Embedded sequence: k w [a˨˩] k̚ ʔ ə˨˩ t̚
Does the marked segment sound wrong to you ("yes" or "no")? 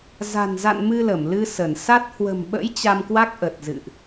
yes